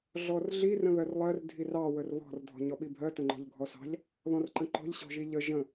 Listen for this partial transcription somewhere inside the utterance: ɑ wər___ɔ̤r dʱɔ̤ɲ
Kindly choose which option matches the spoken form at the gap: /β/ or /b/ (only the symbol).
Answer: β